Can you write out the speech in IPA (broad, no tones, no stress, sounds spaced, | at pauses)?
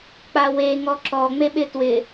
k͡p a w e ŋ ɔ ǁ ɔ ŋ͡m e ɓ ɪ t w ɪ